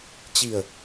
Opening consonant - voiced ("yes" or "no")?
no